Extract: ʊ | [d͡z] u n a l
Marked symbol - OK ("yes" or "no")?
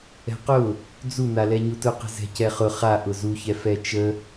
yes